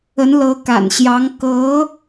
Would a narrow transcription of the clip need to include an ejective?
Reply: no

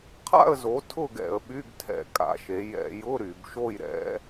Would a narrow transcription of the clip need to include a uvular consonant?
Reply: yes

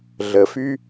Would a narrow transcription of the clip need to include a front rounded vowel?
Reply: yes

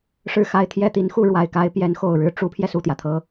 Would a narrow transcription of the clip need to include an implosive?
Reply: no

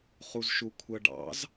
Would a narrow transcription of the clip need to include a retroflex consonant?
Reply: yes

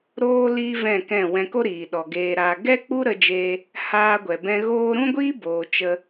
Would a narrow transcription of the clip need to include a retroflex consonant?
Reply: no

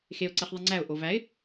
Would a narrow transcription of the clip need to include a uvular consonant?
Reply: yes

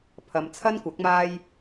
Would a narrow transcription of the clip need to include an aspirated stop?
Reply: yes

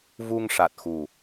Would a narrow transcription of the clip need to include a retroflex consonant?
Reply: yes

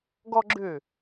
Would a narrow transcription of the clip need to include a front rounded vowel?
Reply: yes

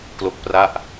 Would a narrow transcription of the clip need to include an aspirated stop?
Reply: no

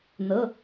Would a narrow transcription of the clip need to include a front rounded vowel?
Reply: no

